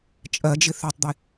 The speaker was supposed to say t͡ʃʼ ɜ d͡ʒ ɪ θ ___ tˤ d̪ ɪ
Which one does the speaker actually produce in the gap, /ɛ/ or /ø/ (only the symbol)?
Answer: ø